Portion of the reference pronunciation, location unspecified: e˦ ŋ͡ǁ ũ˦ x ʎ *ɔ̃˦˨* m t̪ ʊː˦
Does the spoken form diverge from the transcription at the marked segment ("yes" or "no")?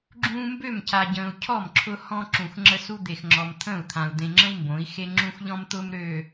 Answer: yes